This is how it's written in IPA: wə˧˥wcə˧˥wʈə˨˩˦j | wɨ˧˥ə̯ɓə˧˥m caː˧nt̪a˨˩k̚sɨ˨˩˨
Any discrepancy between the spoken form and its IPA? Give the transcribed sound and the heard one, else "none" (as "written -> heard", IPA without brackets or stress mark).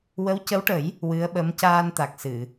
none